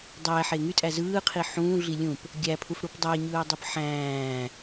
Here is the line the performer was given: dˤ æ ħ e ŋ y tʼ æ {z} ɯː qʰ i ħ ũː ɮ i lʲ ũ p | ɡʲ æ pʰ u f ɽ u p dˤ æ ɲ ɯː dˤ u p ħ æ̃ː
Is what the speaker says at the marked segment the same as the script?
yes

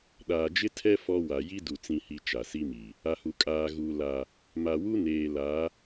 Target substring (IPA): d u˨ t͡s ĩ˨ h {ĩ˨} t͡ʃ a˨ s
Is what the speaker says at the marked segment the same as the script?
no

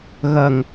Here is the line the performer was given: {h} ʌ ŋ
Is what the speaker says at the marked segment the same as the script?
no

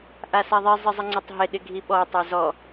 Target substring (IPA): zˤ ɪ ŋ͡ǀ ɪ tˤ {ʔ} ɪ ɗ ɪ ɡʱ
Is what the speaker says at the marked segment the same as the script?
no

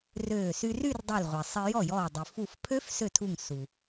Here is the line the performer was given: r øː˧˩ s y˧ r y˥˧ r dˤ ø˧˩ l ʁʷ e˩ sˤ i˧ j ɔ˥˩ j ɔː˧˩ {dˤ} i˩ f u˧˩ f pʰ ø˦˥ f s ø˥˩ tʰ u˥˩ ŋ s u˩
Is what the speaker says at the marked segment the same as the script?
yes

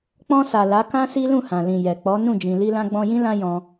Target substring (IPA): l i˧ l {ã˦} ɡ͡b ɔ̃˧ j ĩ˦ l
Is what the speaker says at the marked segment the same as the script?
no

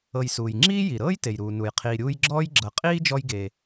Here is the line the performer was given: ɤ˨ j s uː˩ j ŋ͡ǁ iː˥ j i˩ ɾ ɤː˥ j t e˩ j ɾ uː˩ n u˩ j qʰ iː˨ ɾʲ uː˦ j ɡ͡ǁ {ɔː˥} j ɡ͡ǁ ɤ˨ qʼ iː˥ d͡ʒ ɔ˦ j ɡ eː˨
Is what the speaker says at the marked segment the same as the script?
yes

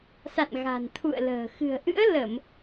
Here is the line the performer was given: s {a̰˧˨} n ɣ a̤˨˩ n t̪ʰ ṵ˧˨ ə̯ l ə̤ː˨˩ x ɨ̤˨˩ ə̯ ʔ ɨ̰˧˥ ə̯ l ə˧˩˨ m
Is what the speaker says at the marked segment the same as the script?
yes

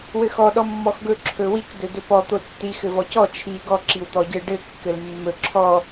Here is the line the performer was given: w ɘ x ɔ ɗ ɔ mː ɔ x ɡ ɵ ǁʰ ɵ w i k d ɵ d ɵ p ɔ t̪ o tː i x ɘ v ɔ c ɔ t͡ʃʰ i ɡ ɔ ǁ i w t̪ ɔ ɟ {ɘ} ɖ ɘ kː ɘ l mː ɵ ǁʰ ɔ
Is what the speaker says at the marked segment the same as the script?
yes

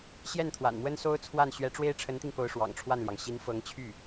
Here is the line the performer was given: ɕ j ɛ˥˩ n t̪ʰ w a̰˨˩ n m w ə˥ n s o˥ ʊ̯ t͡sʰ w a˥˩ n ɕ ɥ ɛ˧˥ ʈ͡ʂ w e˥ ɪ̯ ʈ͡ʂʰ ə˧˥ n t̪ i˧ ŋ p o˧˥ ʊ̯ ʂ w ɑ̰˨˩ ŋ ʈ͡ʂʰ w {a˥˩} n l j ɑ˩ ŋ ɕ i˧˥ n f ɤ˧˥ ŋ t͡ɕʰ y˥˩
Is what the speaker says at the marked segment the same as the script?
yes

